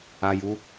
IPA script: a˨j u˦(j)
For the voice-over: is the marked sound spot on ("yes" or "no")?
no